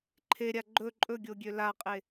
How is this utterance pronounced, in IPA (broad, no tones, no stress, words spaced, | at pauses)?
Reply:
ǃʰeɾʲa ɡ͡ǃɵ ǃʼɵɡʲoɡʲø laqʼe